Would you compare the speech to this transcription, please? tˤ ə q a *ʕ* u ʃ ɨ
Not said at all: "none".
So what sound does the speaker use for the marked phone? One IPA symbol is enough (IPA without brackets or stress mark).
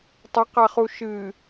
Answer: χ